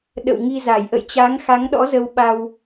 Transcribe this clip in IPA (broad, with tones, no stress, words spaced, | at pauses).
ɗə̰˧˨w ŋi˧za˧˩j ʔə̰˧˨jt͡ɕa˨˦ŋxa˨˦ŋɗɔ̰˧˥ zə˧wɓa˧w